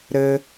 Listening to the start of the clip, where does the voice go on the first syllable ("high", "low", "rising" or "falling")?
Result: high